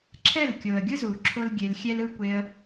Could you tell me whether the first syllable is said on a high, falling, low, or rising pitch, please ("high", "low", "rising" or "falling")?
falling